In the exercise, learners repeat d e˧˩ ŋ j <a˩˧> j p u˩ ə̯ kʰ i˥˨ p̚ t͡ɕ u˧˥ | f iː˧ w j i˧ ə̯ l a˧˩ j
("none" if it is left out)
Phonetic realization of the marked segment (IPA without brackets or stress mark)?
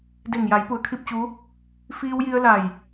a˩˧